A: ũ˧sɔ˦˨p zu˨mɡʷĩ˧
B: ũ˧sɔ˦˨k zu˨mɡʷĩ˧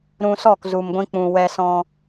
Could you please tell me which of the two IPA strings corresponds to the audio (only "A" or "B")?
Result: B